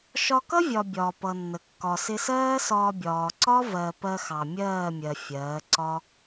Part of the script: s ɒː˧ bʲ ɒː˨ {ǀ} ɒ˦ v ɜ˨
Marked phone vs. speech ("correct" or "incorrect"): correct